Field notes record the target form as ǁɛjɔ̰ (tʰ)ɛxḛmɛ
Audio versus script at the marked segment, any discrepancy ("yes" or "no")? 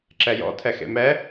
no